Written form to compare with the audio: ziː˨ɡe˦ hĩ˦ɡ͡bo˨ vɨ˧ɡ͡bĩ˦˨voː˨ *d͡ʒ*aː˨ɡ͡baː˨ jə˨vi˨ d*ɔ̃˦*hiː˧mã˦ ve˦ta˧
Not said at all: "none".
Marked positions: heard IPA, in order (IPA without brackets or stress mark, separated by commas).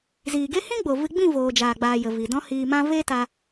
d͡ʒ, ɔ̃˦